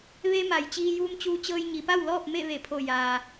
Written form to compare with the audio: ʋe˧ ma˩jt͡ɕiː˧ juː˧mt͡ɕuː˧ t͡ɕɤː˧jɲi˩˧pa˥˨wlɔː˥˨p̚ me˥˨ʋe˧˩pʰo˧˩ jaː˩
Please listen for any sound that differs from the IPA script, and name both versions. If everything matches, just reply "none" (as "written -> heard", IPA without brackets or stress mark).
none